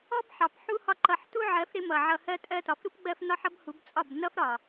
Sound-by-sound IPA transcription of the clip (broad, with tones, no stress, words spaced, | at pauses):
ɔ˦bħɑ˨p ħu˧ hɒ˧ǃʌ˨ħtu˦ʕɜ˨˦f ɾɪ˦mʌ˨ʕʌ˧ hɜ˧tʼɜ˧tɒ˨fɾu˦p ɡ͡bɜ˦f nɒ˦ħʌ˦bhu˨˦bt͡sʼɒ˦˨b nʌ˦fɾɒ˨